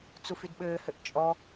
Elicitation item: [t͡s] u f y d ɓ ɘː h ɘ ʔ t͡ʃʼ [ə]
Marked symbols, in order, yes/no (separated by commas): yes, no